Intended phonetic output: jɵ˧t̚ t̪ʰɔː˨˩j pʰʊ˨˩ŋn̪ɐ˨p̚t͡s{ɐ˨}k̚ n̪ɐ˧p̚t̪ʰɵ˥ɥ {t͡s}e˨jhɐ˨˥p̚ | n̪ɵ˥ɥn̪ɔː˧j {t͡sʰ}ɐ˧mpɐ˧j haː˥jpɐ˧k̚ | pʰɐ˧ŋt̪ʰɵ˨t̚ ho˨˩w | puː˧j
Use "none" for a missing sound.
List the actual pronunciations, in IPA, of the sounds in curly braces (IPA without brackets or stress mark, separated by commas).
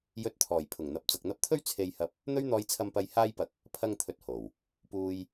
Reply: ɐ˨, t͡sʰ, t͡sʰ